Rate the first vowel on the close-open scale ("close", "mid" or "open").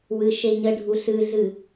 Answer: close